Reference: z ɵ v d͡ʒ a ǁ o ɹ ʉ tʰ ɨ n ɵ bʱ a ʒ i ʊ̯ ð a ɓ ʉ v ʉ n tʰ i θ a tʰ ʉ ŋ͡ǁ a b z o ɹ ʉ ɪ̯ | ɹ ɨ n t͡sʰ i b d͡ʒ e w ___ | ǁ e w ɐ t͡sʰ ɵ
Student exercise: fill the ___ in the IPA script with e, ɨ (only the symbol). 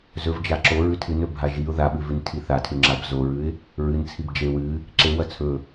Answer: ɨ